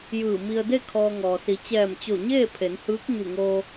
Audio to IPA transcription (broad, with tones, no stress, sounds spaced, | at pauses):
j ɯː˧˩ m i˧ ə̯ d e˥˨ kʰ ɔː˧ ŋ ɔː˩ s i˩˧ t͡ɕ ɛː˧˩ m t͡ɕ o˧˩ ɲ eː˥˨ pʰ e˩˧ n h ɯː˧˥ k̚ ɲ u˧˩ ŋ oː˧